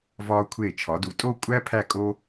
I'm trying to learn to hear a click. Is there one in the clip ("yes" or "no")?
no